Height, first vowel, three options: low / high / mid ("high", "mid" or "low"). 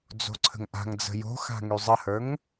mid